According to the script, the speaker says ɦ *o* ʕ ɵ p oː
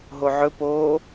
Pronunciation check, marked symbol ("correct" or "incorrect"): correct